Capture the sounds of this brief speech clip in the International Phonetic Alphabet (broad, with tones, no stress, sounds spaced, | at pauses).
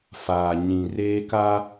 f aː˨ ɲ ĩ˨ r eː˦ k a˦